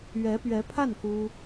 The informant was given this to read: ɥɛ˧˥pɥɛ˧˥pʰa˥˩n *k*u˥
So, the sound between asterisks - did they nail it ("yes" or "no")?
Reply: yes